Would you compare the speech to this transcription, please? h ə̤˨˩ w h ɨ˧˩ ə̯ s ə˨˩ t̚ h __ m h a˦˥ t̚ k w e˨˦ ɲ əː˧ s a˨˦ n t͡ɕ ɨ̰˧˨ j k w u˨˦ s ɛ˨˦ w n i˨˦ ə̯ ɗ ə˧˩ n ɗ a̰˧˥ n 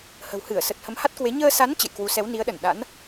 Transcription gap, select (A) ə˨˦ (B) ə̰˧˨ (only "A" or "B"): A